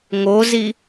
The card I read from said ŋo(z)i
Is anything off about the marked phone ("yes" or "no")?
no